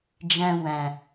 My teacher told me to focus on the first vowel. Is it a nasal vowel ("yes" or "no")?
yes